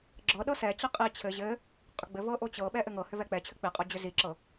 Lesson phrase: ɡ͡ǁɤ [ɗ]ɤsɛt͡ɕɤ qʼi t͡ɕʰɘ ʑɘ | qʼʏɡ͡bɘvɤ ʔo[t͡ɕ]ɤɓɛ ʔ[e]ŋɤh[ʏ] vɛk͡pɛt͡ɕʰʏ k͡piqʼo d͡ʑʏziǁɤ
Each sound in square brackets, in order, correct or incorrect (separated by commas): correct, correct, incorrect, correct